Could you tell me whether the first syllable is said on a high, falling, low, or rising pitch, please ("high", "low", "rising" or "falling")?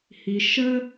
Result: low